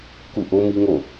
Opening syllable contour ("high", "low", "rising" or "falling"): falling